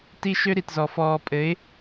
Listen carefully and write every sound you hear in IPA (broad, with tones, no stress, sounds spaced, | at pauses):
t i˦ ʃ ø˦ ɾ i˨ t z ɔ˨ f ɔː˨ pʼ ɘ˨˦ ɪ̯